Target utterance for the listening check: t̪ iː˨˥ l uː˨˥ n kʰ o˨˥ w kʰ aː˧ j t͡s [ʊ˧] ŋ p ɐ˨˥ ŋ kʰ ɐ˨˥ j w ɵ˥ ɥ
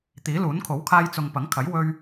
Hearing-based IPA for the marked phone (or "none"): ʊ˨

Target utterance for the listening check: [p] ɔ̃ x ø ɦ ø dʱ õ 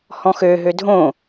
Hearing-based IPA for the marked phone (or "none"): h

